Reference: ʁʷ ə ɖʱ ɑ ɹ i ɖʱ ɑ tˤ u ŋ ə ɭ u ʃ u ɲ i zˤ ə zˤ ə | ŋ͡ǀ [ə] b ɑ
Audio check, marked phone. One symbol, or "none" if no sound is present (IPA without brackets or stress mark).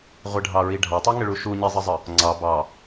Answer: ɑ